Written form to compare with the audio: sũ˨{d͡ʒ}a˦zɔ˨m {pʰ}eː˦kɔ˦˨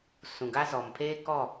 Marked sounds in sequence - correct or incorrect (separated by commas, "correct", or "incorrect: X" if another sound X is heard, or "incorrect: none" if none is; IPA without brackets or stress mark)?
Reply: incorrect: ɡ, correct